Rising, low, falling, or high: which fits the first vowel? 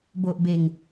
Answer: low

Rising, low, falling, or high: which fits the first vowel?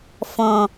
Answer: low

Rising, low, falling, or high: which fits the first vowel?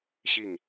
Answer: falling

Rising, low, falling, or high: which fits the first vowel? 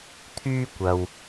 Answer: high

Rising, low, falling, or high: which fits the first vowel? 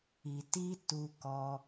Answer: low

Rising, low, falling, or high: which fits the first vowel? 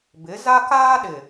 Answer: rising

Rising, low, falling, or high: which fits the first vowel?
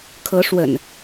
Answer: rising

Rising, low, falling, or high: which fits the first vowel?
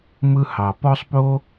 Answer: high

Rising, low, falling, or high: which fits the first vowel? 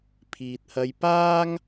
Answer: low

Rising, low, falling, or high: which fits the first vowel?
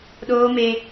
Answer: high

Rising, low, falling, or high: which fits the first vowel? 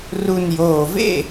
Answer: low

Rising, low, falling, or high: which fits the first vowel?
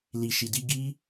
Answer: low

